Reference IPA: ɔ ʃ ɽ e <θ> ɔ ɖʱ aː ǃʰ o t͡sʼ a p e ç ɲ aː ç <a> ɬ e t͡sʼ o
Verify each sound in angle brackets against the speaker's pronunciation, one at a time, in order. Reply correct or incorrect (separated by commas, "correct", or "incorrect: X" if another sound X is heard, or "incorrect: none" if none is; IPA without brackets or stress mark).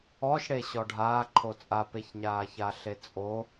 incorrect: ɕ, correct